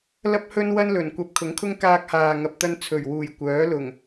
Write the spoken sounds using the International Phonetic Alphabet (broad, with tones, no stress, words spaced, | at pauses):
lɐ˥p̚hɵ˥nwɐ˥nlɵ˨˩n kʷɐ˧p̚kʰʊ˨˥ŋkʰʊ˥ŋ kaː˧k̚haː˨ŋɐ˨p̚t̪ɐ˧n t͡sʰɵ˨˩ɥwuː˨˩j kʷœː˨˥lʊ˨˩ŋ